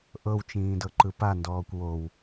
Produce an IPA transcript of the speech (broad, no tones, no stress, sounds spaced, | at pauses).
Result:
ʔ ɤ w t͡ʃ ĩː d ɤ ǃ ɯ p a n d ɔː kʷ w o w